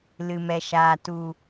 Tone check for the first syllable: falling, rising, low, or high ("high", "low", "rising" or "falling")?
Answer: low